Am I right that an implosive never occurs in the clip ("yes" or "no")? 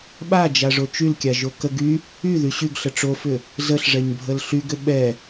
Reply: no